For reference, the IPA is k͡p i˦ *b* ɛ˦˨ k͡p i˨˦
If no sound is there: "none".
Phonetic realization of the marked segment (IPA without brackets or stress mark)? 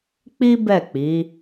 b